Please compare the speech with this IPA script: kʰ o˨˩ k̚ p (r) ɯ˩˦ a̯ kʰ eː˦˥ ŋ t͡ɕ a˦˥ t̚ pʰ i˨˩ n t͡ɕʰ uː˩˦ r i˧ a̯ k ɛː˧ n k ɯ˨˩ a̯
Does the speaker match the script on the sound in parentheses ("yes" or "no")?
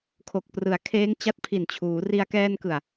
yes